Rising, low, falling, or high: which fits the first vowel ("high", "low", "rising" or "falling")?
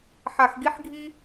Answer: low